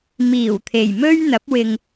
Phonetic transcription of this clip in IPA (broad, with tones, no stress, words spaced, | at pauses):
miː˨˩w t̪ʰe˨˩jmɵ˥ɥ n̪ɐ˨˥p̚wɪ˧ŋ